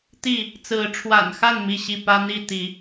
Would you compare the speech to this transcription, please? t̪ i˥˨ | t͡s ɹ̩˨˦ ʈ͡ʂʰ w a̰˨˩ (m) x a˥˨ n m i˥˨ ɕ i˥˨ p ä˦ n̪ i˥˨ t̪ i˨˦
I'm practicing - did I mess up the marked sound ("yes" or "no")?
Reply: yes